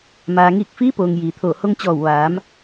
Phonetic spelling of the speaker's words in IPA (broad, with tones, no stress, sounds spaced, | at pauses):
m aː˩ ŋ iː˧˩ k̚ f iː˧˥ p oː˩ ŋ j iː˩ t̪ʰ oː˧˩ h o˧ ŋ t͡ɕ ɔː˧˩ w ʋ aː˩˧ m